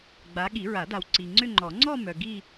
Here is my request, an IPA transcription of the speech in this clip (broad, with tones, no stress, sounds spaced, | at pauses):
ɡ͡b a˨˦ ɠ i˨˩˦ ɹ a˨˩˦ d a˨ w ǀ i˨ ŋ͡ǀ ʏ˥˧ ŋ͡ǃ ɔ˨˩˦ ŋ͡ǀ ɔ˥˧ m œ˨ ɡ i˥˧